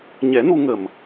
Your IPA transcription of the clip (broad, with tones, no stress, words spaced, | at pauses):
ɲɛ˨˩˦ nu˧ŋə˨˩m